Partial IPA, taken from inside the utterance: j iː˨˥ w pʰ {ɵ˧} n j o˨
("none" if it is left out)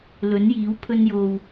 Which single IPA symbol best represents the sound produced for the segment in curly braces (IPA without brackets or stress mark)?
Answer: ɵ˧